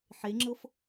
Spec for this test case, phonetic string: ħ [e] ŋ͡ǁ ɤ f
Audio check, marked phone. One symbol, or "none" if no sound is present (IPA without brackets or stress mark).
e